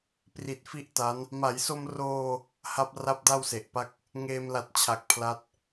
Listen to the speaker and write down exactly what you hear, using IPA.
p r i˨˩ t̚ f i˥˩ ʔ t a˦˥ n | m a˩˦ j s o˧ m r oː˧ | h a˦˥ p̚ r a˦˥ p̚ d a˥˩ w s e˨˩ ʔ p a˥˩ k̚ | ŋ eː˧ m l a˨˩ t̚ t͡ɕʰ a˨˩ k̚ pʰ l a˦˥ t̚

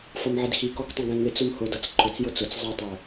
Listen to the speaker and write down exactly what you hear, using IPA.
f ʌ m ʕ ɪ d x i k ɔ k tˤ ɛ̃ ɡ ɛ̃ ŋ ɪ t͡s ʊ m h ʊ d ʌ t͡s ǃʰ ʊ t͡s j ʊ t͡s ʊ t͡s zˤ ʌ tˤ ə˞

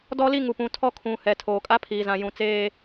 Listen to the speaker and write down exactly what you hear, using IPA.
d ɔ˦ l i˦ ŋ u˨ p ũ˨ tʰ ɔ˦ kʰ ũ˨ h ɛ˨ tʰ oː˨ kʼ a˦ pʰ iː˨ z ã˨ j ũ˨ t͡s eː˦

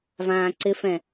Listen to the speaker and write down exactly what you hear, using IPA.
v ãː ǀ ɪ f ɛ̃

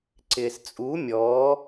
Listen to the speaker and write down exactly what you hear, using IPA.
ǀ ɪː s t͡sʼ u mʲ ɔː

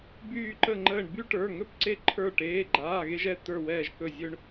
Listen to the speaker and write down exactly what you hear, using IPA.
b yː˧˩ ǃ ə˧˩ ŋ͡ǃ əː˧˩ ɳ b y˦ ʈ ə˞˩˧˩ ŋ ɵ˥˩ p ǀ e˦ ǃʰ ə˞˧˩ ʈ eː˩˧˩ ɡ͡ǃ aː˩˧˩ ɣ e˦ ʒ ɛ˩˧˩ t̪ ə˞˧˩ w ɛː˧˩ ʒ k ɵ˧˩ zʲ ɵ˦ ɳ

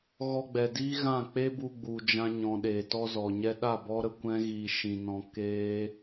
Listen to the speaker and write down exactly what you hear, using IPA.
ɣ ɔ˧ ɡ͡b ɛ˨ d iː˦ ɣ ã˦˨ k͡p e˦ b u˧ ɡ͡b u˨ d͡ʒ ã˧ ɲ ɔ̃˨ ɗ eː˨ t ɔ˧ z ɔ˨ ɲ ɛ˧ ɗ a˦˨ b ɔ˦ ɾ ə˧ kʷ ɛ̃˦ ɣ iː˧ ʃ ĩ˧ n ɔ̃˧ k eː˦

